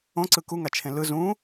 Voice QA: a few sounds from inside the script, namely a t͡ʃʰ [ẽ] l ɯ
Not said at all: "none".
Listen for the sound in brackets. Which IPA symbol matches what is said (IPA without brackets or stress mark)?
ẽ